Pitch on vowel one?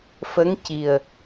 rising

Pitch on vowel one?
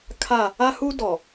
falling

